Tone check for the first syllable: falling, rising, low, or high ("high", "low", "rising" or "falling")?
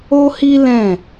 high